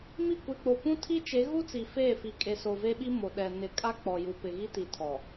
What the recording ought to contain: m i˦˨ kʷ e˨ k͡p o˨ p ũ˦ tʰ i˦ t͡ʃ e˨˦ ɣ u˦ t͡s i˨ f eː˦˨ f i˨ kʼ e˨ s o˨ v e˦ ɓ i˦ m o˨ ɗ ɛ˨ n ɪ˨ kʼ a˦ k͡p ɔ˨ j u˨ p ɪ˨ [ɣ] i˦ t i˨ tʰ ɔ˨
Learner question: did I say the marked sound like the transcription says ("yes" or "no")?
yes